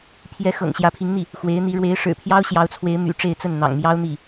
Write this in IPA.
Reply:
pʰ j ɛ˧˥ x ɤ̰˨˩ ŋ ɕ j ä˧˥ pʰ i˧˥ ŋ n̪ i˥˩ | x w e˧˥ ɪ̯ n̪ i˧˥ ɻ w e˧˥ ɪ̯ ʂ ɻ̩˨˩ pʰ j ɑ˥ ʊ̯ ɕ j ɑ˧˥ ʊ̯ t͡sʰ w e˧˥ ɪ̯ m y̰˨˩ ʈ͡ʂ e˥˧ ɪ̯ t͡s ə˥˩ n n̪ ɑ̰˨˩ ŋ m j ɑ˥ ʊ̯ n̪ i˥˩

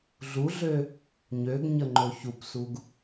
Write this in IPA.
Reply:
ɮ u ɮ ø | ɲ ø ɡ ɲ ə ŋ͡ǃ o ç u p s u ɡ

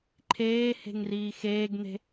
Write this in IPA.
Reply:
ǃʰ eː h e̤ ŋ r iː x eː ɡ n̪ e̤

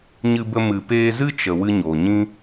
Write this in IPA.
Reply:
ɲ ɨ˧ b ə˧ m ɨ˨ p eː˧ z ɨ˦ t͡ʃ ə˨ w ɨ˧ ɲ oː˨ ɲ ĩ˦

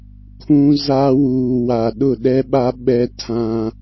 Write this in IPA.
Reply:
kʰ ũ˦ z a˦ w uː˨ w a˨ ɗ ʊ˦˨ ɗ ɛ˦ ɓ a˦ ɓ ɛ˦ tʰ ã˦

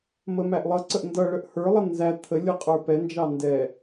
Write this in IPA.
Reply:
m ə m æ ʔ lˠ ʌ ǀ ə ʔ n d ʌ ɭ ə ʔ h ə˞ lˠ ʌ n z æ t̪ʰ ə lʲ ʌ qʼ ə˞ p ɛ n d͡ʒ ɑ n d ɛ

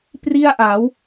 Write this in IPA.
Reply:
p r i˥˩ a̯ ʔ a˩˦ w

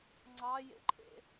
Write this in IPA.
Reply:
ŋ͡ǀ ɑ j ḛ ǃʰ ḛ

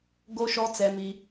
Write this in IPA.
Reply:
ɡ o˦ ʃ ɔ˦ t͡s ɛ˦ m i˦

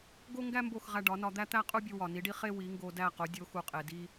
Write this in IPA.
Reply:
ɡ o˥ ŋ ɡ æ˥ m b o˥˩ x ʁ æ˧ ɖ ɒ˩˥ n ɒ˧ d̪ æ˥ t̪ æ˥ qʼ u˥ bʲ u˧ w ɒ˩ n i˩˥ ɖ i˥ χ e˥ w i˩˥ ŋ ɡ o˧ d æ˥˩ q o˩˥ dʲ o˩˥ x u˩ qʼ e˩ d i˧

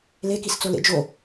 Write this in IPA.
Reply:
l e k i s t͡s o l ḛ d͡ʒ o

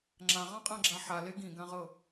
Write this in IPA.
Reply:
ŋ͡ǁ ã ʁ ɑ̃ qʼ ã ɡ͡ǁ a ħ a l e ɡ ĩ ɡ ã ʁ ɤ

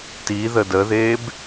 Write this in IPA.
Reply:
t i ð ə d ə ð eː b

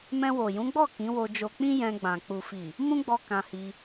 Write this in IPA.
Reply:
m ɛ̃˧ w o˨ j ũ˨˦ ɡ͡b ɔ˦˨ k ĩ˨˦ w o˧ d͡ʒ o˧ k͡p ĩ˦ j ɛ̃˧ ɡ͡b ã˨ k͡p u˨ f i˨ | m ũ˦ ɡ͡b ɔ˧ k ã˧ h i˧

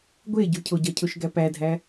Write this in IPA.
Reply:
ɡʷ e ɟ u cʰ o ɟ ɒ cʰ o ʃ ɡ æ p æ dʱ æ

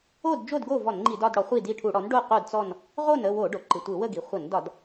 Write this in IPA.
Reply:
o˥˨ d d͡ʒ o˥˨ d ɡ o˥˨ v ɔ˧˩˧ n ŋ͡ǃ i˧˩˧ d ɒ˥˨ d ɽ ɔ˩˥ χʷ i˥˨ d i˥˨ ʈʰ u˧˩˧ ɽ ɔ˩˥ n ɖ o˥˨ q o˥˨ d t͡s ɔ˥˨ n | ʁ o˥˨ n ə˥˨ w o˧˩˧ ɖ o˩ ǃ ɯ˩ tʷ ɯ˧˩˧ w ə˥˨ ɡ i˩ χʷ ə˧˩˧ n d ɒ˧˩˧ d

